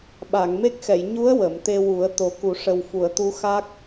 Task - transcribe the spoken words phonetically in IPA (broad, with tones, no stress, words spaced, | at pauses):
ɓa˨˩˨ŋ me˦˥k̚xɛ˨˩˨j ɲu˧˥ə̯ wə˨˩˨mt̪e˧wu˨˩˦ə̯ t̪o˨˩˦ku˨˩˦ʂə˨˩w fu˨˩˨ə̯t̪u˧˥ xa˦˥k̚